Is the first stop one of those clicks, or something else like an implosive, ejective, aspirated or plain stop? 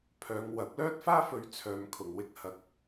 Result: aspirated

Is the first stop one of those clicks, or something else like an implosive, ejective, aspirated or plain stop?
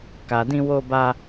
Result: plain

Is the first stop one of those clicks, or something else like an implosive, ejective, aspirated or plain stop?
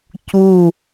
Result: plain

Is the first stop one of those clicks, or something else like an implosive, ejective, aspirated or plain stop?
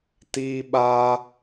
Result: plain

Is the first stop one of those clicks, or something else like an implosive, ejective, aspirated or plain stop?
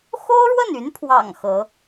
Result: aspirated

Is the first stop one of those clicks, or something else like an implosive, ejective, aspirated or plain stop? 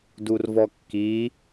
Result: plain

